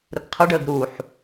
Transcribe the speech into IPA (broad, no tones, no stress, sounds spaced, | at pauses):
ɾ ʊ ɡ qʰ ʌ ɖ əː ɡ ɾ u ħ